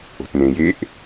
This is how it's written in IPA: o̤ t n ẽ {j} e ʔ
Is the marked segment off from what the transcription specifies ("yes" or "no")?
no